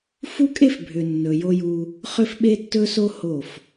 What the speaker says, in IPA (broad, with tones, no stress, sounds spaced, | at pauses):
f u˦ kʼ e˦ f bʱ ʏ˨ nː ɵ˨ j o˦ j u˦ | χ ʏ˦ f ɓ e˦ tː ɵ˦ s o˦ h o˦˨ f